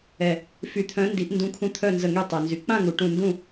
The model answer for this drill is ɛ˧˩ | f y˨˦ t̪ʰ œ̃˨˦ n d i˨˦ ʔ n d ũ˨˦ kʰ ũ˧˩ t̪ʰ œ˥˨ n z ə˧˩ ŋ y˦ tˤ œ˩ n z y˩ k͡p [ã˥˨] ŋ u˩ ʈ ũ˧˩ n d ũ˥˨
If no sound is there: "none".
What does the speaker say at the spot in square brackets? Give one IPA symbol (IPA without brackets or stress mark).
ã˥˨